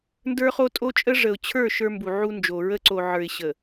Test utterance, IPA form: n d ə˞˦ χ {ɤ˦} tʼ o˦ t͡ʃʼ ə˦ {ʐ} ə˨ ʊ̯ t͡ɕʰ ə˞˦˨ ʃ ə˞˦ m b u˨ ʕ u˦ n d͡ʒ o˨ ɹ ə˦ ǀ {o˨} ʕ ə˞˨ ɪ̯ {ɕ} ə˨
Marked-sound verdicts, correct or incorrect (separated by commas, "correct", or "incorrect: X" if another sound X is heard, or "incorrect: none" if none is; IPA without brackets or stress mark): incorrect: o˦, correct, correct, correct